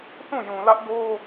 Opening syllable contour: falling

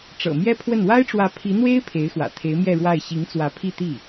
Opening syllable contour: low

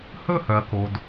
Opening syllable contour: falling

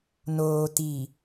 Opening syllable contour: low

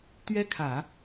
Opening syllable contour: high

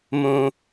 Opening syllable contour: high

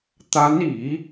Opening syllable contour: rising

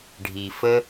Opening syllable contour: low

